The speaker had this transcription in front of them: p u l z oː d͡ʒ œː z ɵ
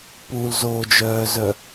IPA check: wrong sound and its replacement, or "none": ɵ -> œ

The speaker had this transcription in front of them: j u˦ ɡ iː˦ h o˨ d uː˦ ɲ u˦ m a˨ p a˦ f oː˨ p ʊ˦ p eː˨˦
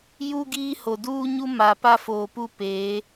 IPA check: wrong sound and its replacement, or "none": ʊ˦ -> u˦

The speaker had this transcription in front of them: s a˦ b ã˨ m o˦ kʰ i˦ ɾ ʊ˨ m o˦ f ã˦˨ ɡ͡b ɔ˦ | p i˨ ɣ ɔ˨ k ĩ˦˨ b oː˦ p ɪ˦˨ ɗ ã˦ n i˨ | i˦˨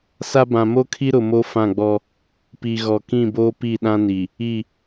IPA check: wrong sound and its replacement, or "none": ɪ˦˨ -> i˦˨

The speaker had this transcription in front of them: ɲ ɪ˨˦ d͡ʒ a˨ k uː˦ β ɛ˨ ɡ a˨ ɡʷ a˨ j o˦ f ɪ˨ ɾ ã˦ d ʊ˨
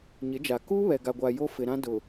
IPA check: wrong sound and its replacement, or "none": none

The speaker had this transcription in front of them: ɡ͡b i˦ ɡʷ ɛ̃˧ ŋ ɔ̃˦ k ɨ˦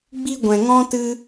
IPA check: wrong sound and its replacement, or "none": k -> t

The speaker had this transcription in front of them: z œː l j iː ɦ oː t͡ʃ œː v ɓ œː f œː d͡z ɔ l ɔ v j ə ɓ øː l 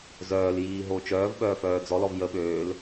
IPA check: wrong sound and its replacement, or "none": none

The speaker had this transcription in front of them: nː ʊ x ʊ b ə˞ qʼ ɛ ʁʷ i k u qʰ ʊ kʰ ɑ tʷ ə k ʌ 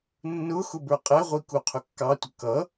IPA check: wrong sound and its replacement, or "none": kʰ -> kː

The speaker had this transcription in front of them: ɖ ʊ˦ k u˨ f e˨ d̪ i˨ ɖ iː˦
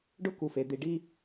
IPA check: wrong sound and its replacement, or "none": none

